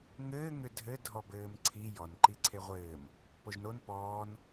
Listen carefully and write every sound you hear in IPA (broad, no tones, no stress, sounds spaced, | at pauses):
ŋ ɘː ŋ ʏ dʱ ɘ dʱ ɔ b ɘː m ǀʰ i j ɔ n ǃ i ǀʰ e ʁʷ ɘː m | p o ʒ n o n p ɔː n